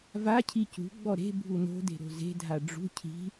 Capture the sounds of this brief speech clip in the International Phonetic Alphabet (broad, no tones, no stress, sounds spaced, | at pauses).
v a cʰ i c ṳ ɡ͡b ɔ ɾ e̤ bʱ u n o̤ d e̤ ɾ o̤ z e̤ dʱ a ɖ͡ʐ ṳ cʰ i̤